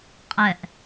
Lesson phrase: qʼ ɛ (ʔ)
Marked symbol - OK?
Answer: yes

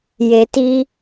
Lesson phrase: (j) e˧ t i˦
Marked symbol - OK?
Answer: yes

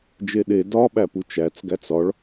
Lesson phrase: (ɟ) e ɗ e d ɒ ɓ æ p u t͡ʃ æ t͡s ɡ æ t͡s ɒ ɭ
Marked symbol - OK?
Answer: no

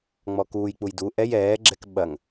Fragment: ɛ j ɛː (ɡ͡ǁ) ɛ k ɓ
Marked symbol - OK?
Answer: yes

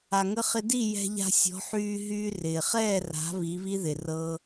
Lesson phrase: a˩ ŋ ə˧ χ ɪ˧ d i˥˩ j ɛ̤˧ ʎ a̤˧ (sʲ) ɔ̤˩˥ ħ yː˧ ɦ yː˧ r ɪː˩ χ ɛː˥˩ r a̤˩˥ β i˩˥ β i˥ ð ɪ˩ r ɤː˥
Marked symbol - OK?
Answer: yes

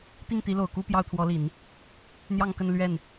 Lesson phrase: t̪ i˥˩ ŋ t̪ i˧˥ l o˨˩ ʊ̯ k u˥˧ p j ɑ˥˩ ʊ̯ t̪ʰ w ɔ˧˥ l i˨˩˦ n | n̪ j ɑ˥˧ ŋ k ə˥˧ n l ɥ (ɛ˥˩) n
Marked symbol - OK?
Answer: yes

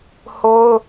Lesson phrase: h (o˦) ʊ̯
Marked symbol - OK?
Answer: yes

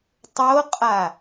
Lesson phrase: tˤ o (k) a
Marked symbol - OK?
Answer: no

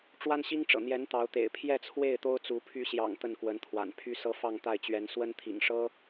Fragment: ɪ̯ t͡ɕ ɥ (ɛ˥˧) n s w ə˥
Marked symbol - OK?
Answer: no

